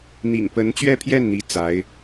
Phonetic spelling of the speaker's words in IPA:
n̪ḭ˨˩ŋpə˧˥nt͡ɕɥɛ˥˧pʰjɛ˥˩n n̪i˥t͡sa˧˥ɪ̯

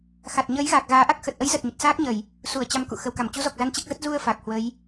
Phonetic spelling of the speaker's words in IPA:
xa˨˩t̚ɲəː˨˦jɣaː˨˩k̚ ɣaː˨˦ʔa˦˥k̚ xə˨˩t̚ʔə˨˦jzə˨˩t̚ ɲə˨˩t̚saː˦˥k̚ɲə˧˩˨j | su˧˩ə̯ t͡ɕa˨˦m kṵ˧˨xə˨˩wka˧˩m t͡ɕu˨˦zɔ˨˩k̚za˧n t͡ɕe˦˥k̚zə˦˥t̚ zu˧ə̯ fa˨˩k̚hwə˨˦j

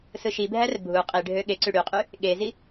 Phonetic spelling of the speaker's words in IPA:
sɯʃibʱær bʱu qʼiɖʱø ɠeǀy ɽyqʼy | ɠezi

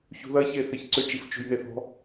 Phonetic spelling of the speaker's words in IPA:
çṳðɐçe θeçǀʏt͡ʃif t͡ʃṳjneθɔ̤

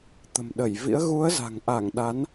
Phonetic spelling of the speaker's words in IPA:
t̪ə̤˨˩mɗə˧˩jvḭ˧˥ə̯ ɣu˨˦ə̯za̤˨˩ŋʔa˧˩ŋ ɗa˨˦n

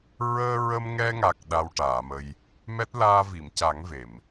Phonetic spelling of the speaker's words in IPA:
ɹəː˧ɹə˧mŋɛ˧ŋa˨˩k̚ ɗa˧wʈaː˨˩˨mə˧j | mɛ˦˥t̚laː˧vi˨˩˨mca˨˩˦ŋ ve˨˩˨m

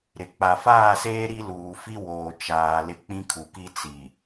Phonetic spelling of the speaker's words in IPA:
ɾɪ˨ k͡pa˨faː˦˨seː˦ ɾi˦luː˨fi˦ woː˨ t͡ʃaː˨ lɪ˦k͡pĩ˦kʰu˨ki˦ t͡si˨

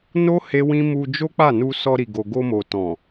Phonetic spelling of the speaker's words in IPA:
no˦ he˦wĩ˦ mu˧ d͡ʒo˦k͡pa˦˨nu˧ sɔ˧ɾi˨ɡo˨ ɡo˧mo˨ tɔ̃˨

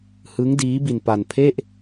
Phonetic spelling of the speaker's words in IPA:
hɯ˦˥ŋ diː˦˥bi˧npa˧npʰe˥˩ʔ

